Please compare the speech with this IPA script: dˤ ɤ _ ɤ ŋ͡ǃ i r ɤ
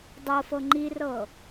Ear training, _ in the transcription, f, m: f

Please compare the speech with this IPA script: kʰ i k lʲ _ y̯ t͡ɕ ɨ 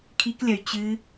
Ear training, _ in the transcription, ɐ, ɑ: ɐ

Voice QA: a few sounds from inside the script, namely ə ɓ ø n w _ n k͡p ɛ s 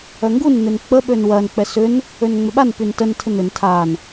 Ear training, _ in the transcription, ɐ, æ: ɐ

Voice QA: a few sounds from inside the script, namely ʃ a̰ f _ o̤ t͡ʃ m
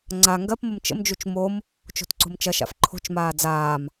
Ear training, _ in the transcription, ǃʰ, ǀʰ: ǃʰ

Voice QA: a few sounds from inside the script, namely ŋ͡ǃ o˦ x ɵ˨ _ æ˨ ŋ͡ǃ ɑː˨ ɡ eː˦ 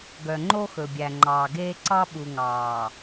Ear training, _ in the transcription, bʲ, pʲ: bʲ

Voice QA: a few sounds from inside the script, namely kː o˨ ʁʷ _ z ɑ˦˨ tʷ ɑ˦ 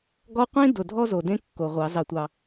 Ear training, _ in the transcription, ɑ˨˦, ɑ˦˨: ɑ˨˦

